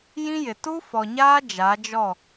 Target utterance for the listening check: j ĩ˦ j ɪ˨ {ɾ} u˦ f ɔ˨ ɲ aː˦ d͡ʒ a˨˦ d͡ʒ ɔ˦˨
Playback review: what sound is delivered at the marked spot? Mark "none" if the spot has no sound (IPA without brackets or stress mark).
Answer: t